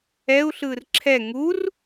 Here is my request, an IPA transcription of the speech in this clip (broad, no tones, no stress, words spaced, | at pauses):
ɛu̯ ɬɯːrǁʰɛ ŋur